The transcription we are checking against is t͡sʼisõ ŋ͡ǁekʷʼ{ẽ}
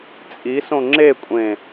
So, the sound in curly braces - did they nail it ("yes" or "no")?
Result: yes